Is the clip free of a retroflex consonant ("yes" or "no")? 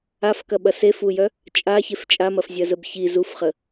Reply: yes